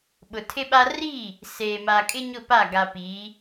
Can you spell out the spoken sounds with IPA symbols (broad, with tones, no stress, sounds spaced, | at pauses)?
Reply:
ɓ ʊ˨ tʰ ɪ˦ ɓ a˦ r i˦˨ | s eː˨ m a˨ kʼ ɪ˦ ɲ ʊ˦˨ p a˦˨ ɡ a˨ p i˨˦